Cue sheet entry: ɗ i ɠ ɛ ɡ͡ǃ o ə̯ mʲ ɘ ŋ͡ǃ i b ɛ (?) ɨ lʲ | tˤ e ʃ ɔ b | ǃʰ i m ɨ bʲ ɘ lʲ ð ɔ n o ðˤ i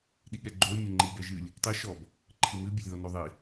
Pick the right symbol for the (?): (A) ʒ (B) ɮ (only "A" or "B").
A